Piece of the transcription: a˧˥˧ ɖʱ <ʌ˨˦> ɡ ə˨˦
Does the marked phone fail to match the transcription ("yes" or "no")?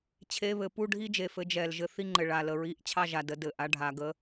yes